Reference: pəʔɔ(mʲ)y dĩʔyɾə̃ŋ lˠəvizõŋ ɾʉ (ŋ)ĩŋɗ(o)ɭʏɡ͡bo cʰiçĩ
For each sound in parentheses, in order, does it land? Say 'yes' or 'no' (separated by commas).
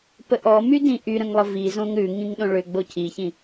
no, yes, no